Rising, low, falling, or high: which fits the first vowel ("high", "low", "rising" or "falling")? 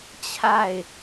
falling